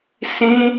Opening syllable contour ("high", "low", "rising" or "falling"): high